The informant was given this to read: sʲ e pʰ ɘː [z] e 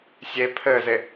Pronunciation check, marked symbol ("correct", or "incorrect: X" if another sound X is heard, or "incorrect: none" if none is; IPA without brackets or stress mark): correct